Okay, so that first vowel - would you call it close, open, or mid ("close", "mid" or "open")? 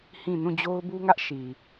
close